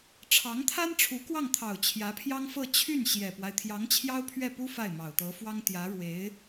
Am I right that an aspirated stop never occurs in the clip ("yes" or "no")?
no